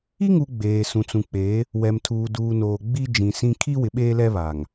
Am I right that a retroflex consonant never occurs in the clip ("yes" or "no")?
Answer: yes